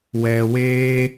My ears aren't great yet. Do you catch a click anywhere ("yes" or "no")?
no